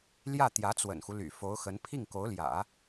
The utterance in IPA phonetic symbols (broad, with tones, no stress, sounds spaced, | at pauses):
l j ä˥˩ t̪ j ä˧˥ t͡s w ə̰˨˩ n x u˦ l y̰˨˩ f o˧˥ ʊ̯ x ə˧˥ n pʰ i˥˩ ŋ k o˧˥ ʊ̯ l j ä̰˨˩˦